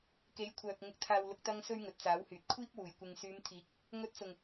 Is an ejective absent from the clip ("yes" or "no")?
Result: yes